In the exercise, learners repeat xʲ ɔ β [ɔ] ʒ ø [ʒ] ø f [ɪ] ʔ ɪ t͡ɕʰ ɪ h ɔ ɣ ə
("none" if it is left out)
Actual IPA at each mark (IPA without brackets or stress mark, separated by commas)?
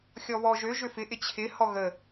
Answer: ɔ, ʒ, ɪ